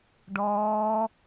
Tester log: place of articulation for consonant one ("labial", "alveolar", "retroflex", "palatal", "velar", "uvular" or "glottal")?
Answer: retroflex